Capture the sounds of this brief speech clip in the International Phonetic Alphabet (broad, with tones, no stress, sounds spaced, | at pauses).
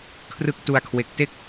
kʰ r ɯ˦˥ k̚ t u˧ a̯ kʰ w e˨˩ k̚ t e˥˩ k̚